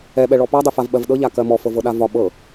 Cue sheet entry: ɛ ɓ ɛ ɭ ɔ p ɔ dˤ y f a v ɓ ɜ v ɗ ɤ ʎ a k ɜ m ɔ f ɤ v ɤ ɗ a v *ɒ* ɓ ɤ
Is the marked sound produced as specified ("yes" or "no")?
yes